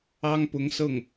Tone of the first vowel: high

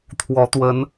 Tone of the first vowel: rising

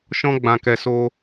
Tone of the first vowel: high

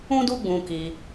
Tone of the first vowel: high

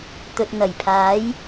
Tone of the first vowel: low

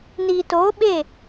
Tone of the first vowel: low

